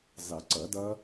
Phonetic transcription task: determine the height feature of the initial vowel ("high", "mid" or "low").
high